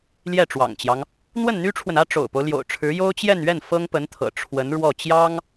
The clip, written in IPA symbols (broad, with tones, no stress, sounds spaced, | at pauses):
l j ɛ˥˩ ʈ͡ʂ w ɑ̰˨˩ ŋ t͡ɕ j ɑ˦ ŋ | n̪ w ə˥˩ n n̪ y˥ ʈ͡ʂʰ w ə˨ n ä˥ ʈ͡ʂ o̰˨˩ ʊ̯ p o˦ ʊ̯ l j o̰˨˩ ʊ̯ ʈ͡ʂʰ ɻ̩˧˥ j o˥ ʊ̯ t͡ɕ j ɛ˥˧ n ɥ ɛ˥˩ n f ɤ˥ ŋ p ə˧˥ n t̪ʰ ɤ̰˨˩ ʈ͡ʂʰ w ə˧˥ n ɻ w ɔ˥˩ t͡ɕ j ɑ˥ ŋ